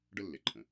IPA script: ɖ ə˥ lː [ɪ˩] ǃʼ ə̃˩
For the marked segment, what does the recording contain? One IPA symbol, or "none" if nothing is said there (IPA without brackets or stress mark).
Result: ɪ˩